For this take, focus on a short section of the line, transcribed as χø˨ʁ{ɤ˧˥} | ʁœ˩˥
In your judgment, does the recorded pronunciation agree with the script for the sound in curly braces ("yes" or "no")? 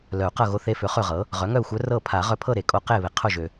no